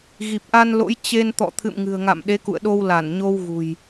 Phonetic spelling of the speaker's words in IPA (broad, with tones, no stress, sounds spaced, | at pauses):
ɣ i˨˩ p̚ ʔ a˧ n l o̰˧˥ j t͡ɕ e˧ n t̪ ɔ̰˧˨ t̪ʰ ɨ̰˧˨ m ŋ ɨ̤˨˩ ə̯ ŋ a̰˧˨ m ɗ e˨˦ k ṵ˧˨ ə̯ ɗ o˧ w l a˧˩ n ɲ o˧ w ɣ ṳ˨˩ j